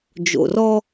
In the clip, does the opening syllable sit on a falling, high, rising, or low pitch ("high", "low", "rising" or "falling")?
low